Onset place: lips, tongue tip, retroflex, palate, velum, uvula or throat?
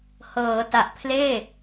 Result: throat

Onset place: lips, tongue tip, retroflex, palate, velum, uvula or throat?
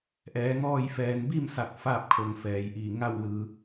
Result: throat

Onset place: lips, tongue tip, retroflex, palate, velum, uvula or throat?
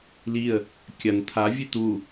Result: tongue tip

